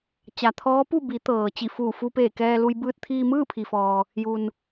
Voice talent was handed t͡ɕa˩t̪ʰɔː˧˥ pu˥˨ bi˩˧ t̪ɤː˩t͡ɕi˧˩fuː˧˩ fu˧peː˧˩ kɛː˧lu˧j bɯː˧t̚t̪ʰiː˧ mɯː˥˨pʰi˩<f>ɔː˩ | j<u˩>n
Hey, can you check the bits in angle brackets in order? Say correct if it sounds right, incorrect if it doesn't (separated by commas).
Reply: correct, correct